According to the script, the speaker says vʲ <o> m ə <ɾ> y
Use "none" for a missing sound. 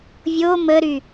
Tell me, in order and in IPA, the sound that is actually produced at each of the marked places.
o, ɾ

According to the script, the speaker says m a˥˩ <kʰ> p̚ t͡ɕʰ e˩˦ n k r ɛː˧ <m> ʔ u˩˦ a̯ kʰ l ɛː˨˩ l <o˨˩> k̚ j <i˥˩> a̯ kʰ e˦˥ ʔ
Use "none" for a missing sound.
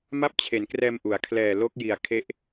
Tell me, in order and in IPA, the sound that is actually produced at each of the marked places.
none, m, o˦˥, i˨˩

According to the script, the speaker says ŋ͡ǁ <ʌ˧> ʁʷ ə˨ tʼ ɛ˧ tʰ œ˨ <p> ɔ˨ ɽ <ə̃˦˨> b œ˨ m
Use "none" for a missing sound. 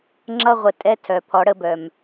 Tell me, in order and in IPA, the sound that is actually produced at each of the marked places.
ʌ˧, pʰ, ə˦˨

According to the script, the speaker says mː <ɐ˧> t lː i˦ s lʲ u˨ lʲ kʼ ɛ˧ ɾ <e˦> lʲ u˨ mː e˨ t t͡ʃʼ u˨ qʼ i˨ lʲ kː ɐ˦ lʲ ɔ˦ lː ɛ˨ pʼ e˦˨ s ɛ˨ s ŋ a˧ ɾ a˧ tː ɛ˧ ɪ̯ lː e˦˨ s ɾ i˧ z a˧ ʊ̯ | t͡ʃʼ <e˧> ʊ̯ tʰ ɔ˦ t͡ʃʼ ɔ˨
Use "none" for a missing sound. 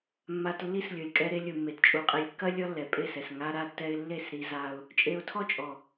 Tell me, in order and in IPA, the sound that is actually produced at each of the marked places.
a˧, e˧, e˧

